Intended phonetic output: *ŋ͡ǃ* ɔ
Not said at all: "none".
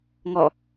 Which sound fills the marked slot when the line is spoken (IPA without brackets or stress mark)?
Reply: ŋ